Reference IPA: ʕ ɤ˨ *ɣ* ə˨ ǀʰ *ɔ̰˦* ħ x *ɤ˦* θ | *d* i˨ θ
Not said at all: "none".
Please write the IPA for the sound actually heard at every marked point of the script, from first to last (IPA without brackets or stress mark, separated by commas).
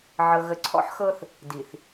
ɣ, ɔ̰˦, ɤ˦, d